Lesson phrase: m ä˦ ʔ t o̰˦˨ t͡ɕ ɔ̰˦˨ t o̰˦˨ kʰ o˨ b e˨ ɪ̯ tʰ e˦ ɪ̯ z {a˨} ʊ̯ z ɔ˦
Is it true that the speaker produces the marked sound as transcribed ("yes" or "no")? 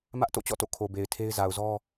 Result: yes